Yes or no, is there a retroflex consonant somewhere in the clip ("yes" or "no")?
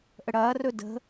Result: yes